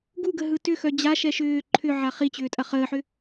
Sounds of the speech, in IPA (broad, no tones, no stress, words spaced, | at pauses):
ɡuɡə ɦɯtʏxœ d͡ʑaʃɛ ʃʏː ǃʰʏ ʕaχit͡ɕʏː tʼɐχəːħʏ